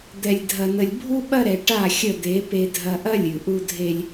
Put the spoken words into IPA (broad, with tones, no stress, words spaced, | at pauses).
d̪ɛ˨lʲdʱɐ˨nə˨lʲbʱu˦ ɓɐ˦ɾɛ˨ ʈa˦˨xʲə˦˨d̪e˨˦ pe˨dʱɐ˨ʔɐ˦ lʲʉ˨ʔu˦ dʱe˦lʲ